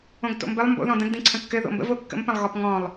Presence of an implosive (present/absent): absent